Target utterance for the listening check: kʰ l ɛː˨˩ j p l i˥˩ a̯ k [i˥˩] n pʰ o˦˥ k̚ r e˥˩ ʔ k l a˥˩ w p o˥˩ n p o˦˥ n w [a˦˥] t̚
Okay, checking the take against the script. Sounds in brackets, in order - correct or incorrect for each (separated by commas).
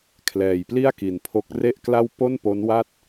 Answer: incorrect, incorrect